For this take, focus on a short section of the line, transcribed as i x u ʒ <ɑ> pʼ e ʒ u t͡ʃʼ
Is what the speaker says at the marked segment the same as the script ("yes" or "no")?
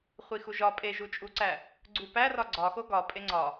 no